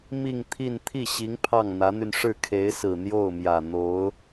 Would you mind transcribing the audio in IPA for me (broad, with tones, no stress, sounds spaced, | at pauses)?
m i˥˧ ŋ t̪ʰ i˥˧ n t̪ʰ i˥˩ ɕ i˧˥ ŋ pʰ ɑ˥˩ ŋ n̪ ä˧˥ n̪ y˧ n ʂ ɻ̩˥˩ kʰ e˧˥ ɪ̯ s ɹ̩˨˩ n̪ j o˥˩ ʊ̯ m j ä˨˩ n̪ o˧˥ ʊ̯